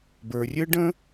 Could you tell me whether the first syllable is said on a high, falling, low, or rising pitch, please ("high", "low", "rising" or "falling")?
low